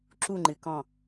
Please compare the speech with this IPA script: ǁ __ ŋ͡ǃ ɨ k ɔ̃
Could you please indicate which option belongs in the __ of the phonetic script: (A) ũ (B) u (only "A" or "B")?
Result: B